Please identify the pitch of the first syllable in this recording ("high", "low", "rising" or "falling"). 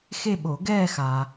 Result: falling